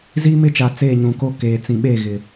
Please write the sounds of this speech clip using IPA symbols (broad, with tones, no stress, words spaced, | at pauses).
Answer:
ziː˦mɪ˦t͡ʃa˨ t͡seː˦˨ɲũ˨ko˦ keː˨t͡sĩ˨ɓe˦˨ɣɪ˨